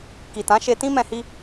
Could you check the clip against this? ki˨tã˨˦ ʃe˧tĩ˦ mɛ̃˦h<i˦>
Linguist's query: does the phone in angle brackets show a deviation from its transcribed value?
no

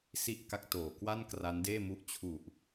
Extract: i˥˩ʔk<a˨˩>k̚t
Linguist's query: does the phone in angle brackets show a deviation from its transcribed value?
yes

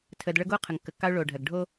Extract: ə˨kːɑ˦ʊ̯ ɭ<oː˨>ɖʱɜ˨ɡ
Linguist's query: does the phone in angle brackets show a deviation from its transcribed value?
no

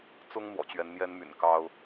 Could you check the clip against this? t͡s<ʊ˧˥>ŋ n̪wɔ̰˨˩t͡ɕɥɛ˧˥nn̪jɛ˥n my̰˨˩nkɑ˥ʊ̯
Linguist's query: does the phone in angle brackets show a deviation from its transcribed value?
yes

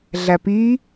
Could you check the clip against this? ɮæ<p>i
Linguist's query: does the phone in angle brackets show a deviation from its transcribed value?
no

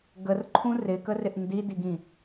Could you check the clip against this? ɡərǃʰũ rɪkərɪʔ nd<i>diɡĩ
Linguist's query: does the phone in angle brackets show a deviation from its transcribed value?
no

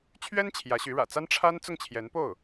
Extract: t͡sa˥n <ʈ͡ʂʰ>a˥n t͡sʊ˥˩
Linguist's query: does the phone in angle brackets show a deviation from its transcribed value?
no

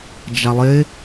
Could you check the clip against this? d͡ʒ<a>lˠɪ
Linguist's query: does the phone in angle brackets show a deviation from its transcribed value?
no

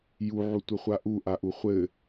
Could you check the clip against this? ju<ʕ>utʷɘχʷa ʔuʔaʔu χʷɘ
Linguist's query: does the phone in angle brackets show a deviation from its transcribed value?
no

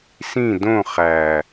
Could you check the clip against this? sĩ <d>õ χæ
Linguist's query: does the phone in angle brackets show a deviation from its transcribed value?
no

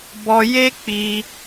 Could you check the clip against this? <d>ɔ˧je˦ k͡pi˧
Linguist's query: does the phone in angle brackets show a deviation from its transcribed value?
yes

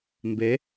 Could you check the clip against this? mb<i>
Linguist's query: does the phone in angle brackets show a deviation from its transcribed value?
yes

